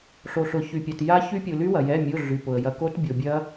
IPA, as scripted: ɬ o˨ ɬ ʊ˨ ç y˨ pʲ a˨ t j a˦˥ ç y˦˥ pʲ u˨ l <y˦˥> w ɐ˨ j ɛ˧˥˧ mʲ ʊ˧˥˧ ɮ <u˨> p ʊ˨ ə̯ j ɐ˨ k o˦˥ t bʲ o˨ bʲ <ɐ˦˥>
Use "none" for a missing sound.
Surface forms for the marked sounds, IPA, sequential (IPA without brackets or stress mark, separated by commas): y˦˥, y˨, ɐ˦˥